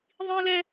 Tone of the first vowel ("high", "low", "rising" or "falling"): high